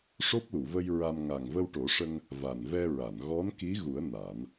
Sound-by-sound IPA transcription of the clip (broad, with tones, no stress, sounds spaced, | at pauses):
ʂ o˦˥ p̚ l u˨˩˨ v ə˧ j ɹ a˧ m ŋ a˨˩ ŋ v ə˧ w ʈ o˨˩˦ ʂ ə˧ ŋ | v a˨˩ n v ɛ˧ ɹ a˨˩˨ n ɣ ɔ˧˥ n k i˧˥ ɣ u˨˩˦ ə̯ n a˨˩˦ n